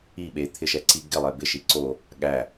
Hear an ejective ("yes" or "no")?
no